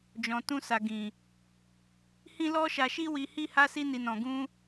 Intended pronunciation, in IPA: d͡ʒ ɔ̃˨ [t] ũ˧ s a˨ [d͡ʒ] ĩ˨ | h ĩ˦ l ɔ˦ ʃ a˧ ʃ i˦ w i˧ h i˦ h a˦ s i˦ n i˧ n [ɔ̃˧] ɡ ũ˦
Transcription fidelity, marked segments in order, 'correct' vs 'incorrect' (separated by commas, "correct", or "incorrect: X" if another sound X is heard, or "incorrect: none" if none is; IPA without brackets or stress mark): correct, incorrect: ɡ, correct